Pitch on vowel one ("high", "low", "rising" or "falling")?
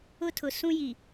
high